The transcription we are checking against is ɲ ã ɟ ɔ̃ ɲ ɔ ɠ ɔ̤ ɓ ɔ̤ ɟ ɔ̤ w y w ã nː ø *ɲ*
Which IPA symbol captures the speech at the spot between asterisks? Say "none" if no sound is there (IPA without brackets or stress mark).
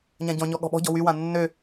none